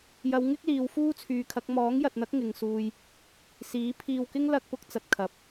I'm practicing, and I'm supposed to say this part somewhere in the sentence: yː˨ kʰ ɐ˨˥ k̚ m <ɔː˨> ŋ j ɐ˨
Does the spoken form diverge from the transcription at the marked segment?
yes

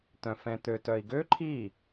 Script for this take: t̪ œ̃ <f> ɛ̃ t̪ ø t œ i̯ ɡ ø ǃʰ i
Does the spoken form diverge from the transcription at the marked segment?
no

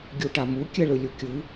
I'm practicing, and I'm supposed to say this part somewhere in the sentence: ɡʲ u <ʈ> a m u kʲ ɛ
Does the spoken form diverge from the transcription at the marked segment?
no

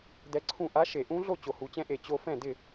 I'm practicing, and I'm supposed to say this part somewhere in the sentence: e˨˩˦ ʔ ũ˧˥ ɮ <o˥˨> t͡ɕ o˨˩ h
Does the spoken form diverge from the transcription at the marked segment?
no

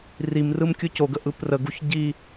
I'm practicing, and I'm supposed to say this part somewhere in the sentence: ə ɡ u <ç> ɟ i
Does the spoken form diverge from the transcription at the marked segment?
no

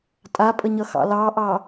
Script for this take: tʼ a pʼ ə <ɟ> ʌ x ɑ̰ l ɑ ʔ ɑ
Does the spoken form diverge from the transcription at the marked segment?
yes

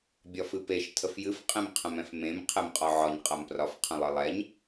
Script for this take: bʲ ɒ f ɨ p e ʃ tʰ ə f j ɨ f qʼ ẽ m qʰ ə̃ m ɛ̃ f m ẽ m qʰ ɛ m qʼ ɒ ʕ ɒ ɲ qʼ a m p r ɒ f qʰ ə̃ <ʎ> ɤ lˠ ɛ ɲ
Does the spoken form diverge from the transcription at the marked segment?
yes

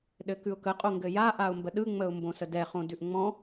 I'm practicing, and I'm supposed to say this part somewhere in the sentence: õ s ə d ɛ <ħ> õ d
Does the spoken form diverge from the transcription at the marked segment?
yes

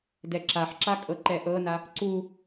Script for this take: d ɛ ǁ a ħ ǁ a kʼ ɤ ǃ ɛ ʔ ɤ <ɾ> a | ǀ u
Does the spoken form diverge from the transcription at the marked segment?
yes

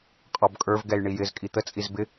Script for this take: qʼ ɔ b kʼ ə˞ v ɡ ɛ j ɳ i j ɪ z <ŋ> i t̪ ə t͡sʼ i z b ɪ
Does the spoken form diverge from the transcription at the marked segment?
yes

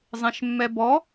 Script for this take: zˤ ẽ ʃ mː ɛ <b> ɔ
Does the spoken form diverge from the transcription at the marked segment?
no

